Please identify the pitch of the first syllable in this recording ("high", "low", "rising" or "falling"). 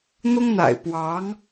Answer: high